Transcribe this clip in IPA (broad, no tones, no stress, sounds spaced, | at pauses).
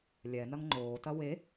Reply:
lʲ ɛ n ɐ ŋ ŋ͡ǃ oː t ɐ w e